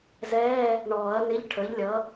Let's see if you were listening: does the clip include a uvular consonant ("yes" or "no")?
no